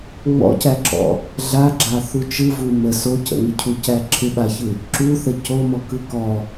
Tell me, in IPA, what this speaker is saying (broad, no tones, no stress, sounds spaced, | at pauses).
ŋ͡m ɔ̰ c æ ǁ ɔ̰ | ɮ a ɡ͡ǁ a θ u t͡ʃ ɯ v u m ə s o c ə̰ ŋ ɪ cʰ u c æ ǁʰ ɪ ɓ a ç ɯ | ǁ u θ ə c o m ɔ k ɯ k ɔ